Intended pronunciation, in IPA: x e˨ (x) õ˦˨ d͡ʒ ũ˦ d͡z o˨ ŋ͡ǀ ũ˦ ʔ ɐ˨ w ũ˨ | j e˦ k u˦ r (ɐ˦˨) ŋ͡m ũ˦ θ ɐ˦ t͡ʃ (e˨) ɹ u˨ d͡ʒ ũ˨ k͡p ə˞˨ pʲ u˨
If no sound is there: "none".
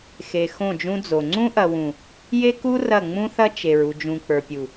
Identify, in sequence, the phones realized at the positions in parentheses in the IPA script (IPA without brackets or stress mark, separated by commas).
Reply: x, ɐ˦˨, e˨